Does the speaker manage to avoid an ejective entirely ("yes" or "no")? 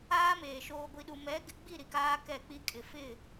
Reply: no